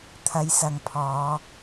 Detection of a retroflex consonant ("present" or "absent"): absent